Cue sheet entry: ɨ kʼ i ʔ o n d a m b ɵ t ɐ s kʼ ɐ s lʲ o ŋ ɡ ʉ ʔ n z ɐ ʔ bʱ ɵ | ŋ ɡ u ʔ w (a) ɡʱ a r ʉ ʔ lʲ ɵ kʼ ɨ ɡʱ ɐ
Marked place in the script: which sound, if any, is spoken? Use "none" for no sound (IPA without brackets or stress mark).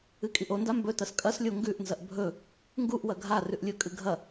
ɐ